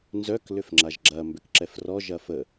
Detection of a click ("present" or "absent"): present